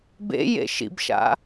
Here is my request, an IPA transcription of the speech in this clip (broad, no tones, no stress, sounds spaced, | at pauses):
b ḛ j ḛ ʃ ḭ b ʃ a̰